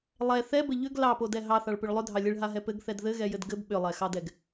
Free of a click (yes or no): yes